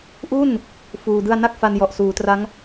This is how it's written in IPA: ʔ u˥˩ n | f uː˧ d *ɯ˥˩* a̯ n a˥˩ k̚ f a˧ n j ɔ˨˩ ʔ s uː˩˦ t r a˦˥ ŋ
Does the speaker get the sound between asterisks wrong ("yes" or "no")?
no